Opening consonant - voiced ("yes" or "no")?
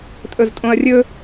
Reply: no